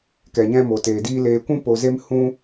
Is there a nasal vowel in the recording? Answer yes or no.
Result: yes